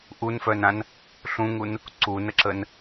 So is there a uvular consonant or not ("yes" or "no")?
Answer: no